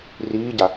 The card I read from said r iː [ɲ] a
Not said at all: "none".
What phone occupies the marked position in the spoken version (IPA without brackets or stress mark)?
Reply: ɟ